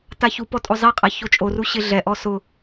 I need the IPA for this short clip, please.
taçupɔ tʼozˤiqʼa çot͡ʃʼoru ɕɪɮɛʔɔ sʊ

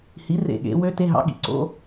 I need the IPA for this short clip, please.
hi˩˥rḛ˧˩ ɠḛ˩˧wø˧˥ te˧˥˧ɦɑ̰˧˥ ɠḭ˧˩ǀo̰˧˥˧

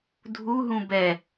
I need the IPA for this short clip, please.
dʱuɦũ bɛ

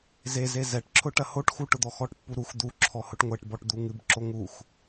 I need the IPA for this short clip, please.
zeze zɛʈǁʰʊ ʈɐhoʈxu ʈʊd̪ɔxɔʈpːu ɾux d̪u ǁʰɔhʊʈŋʷɛʈbɔʈ d̪uŋɨbǁo ŋux

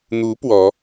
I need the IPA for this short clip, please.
n̪u˧˥ pwɔ˧˥

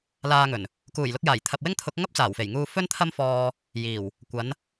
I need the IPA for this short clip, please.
laː˧ŋɵ˨˩n | kuː˨˩jlʊ˧k̚jaː˨˩j t̪ʰɐ˨p̚wɪ˥ŋt̪ʰʊ˨˥k̚ ŋɐ˥p̚t͡saː˨˩wfe˨˩j ŋuː˧ fɵ˥nt̪ʰɐ˥mfɔː˧ | jiː˨˩w | kʷɐ˨˥n

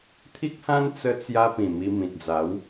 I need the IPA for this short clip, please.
t̪ʰi˦k̚hã˦n t͡sə˧t͡sja˧ pĩ˨˩mi˧mĩ˨t̚ d͡za˨˦w

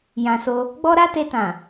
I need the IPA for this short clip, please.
jã˧so˧ | ɡ͡bɔ˦ɾa˦te˧tã˨

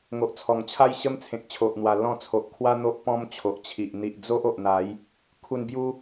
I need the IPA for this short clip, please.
ŋo˨ʔt͡sʰɔ˨˩ŋt͡ɕʰa˦j ɕə˦mt͡sʰẽ˨k̚t͡ɕʰo˨ʔn̪wa˨˩ lɔ̃˦ t͡sʰo˨ʔkʰwa˦ n̪o˦ʔpɔ̃˦m t͡ɕʰo˨ʔt͡ɕʰi˨ʔ n̪i˨ʔd͡zo˦ʔ o˨ʔn̪a˨˦j | kʰu˨˩nbju˧

